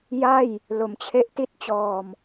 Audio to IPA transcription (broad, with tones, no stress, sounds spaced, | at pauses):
j a˥˩ j | l o˩˦ m t͡ɕʰ e˦˥ ʔ t i˥˩ t̚ t͡ɕ ɔː˧ m